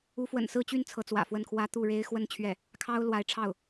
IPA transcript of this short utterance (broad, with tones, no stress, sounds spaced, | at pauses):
u˧˥ f w ə̰˨˩ n s ɹ̩˥˧ t͡ɕ y˥˩ n t͡sʰ ɤ˧˥ t͡s w ä̰˨˩ f w ə˥˩ n kʰ w ä˥ t̪ u˥˩ ɻ e˥ ɪ̯ x w ə˥˧ n t͡ɕʰ ɥ ɛ˥˩ | kʰ ɑ˥ ʊ̯ l w a˧˥ ɪ̯ ʈ͡ʂʰ ɑ˥˩ ʊ̯